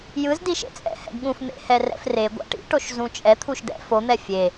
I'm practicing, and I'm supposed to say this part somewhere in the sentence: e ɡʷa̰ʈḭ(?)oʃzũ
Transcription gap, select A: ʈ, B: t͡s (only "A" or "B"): A